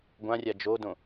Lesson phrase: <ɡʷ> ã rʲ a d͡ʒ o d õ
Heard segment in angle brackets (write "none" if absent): ɡʷ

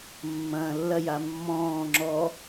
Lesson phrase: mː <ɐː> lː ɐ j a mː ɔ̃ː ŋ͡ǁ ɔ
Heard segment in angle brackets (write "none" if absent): ɐ̃ː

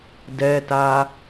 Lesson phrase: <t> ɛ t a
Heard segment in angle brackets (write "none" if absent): d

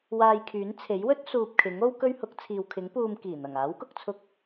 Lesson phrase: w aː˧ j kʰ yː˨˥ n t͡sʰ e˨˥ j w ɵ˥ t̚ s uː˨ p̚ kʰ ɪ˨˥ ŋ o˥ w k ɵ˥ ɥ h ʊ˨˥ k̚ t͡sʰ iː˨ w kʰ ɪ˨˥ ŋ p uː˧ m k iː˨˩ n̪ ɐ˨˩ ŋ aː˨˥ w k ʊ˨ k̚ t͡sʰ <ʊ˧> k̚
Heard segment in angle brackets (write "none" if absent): ʊ˧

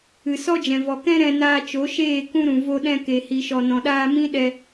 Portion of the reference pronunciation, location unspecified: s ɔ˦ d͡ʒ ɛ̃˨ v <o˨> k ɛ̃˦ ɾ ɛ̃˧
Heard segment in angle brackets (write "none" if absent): ɔ˨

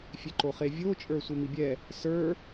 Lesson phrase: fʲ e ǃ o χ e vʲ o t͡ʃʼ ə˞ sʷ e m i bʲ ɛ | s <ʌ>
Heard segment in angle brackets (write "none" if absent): ə˞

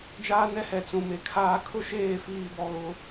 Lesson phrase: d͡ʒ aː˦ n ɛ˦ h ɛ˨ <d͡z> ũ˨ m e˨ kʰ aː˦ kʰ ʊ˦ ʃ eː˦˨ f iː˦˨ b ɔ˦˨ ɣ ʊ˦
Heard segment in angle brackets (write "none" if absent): t͡s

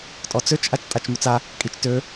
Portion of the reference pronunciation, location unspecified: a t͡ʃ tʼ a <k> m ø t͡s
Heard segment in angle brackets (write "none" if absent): t͡ʃ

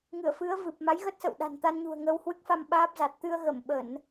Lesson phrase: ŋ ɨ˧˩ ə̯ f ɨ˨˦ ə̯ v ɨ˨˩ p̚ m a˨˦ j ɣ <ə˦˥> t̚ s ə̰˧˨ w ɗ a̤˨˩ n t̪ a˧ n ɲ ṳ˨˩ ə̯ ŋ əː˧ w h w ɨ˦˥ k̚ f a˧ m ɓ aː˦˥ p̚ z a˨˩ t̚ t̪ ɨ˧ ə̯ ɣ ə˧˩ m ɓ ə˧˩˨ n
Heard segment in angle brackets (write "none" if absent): ə˦˥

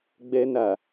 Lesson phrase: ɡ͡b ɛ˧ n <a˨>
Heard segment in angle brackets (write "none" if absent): a˨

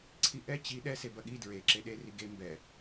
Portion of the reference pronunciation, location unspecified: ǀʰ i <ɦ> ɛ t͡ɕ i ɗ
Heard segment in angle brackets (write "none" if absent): ʔ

